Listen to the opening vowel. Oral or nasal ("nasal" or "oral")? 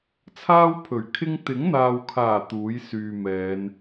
oral